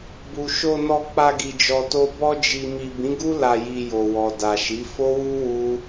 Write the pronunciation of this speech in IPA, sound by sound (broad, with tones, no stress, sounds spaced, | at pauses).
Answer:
b u˨ ʃ o˧ n ɔ˧ k͡p a˧ ɡ i˨ d͡ʒ ɔ˨ t o˧ b ɔ˧ d͡ʒ i˨ m i˨ b ĩ˨˦ ɡ u˦ l a˧ j i˧ j o˨ w ɔ˨ d a˨ ʃ i˨˦ f o˦ w u˦ w u˦